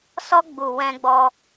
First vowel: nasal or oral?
oral